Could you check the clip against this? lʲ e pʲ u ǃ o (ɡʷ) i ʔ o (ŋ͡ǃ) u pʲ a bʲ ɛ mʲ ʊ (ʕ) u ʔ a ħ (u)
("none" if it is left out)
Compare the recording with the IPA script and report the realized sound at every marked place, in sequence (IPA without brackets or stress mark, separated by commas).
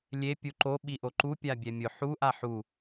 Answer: ɓ, ǃ, ħ, u